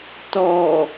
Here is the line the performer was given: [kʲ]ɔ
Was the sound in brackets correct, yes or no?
no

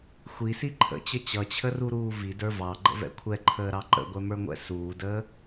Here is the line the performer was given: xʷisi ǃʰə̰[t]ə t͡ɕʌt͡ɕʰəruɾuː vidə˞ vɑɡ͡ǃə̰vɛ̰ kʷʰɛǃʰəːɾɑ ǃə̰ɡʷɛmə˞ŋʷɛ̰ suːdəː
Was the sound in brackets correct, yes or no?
no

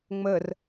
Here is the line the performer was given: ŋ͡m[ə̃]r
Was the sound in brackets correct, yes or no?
no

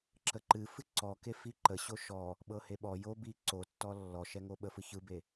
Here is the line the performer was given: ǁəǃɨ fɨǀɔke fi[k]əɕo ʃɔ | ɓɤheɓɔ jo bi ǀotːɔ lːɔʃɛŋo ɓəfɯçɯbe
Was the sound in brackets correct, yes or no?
no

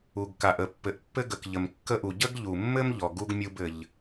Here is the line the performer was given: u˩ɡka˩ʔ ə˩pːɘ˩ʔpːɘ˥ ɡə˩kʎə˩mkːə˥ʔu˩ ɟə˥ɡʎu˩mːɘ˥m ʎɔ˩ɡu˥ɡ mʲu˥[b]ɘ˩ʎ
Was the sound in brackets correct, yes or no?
yes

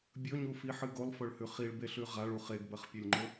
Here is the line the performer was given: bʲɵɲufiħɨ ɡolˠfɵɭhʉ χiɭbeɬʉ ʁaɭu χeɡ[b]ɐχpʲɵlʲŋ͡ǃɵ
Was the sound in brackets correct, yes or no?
yes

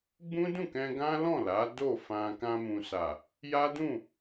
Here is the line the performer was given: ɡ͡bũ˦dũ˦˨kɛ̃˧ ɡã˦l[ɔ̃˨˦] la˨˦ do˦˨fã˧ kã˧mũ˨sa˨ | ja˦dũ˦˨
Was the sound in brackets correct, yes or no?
no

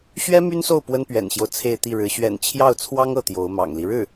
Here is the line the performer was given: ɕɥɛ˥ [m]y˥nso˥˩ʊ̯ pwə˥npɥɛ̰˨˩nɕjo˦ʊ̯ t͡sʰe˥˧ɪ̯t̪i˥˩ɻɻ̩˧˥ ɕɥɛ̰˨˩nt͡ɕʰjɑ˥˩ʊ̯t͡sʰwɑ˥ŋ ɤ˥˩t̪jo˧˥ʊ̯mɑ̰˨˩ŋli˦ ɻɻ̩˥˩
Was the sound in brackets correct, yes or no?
yes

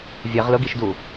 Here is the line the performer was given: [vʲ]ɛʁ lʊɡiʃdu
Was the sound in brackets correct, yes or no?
yes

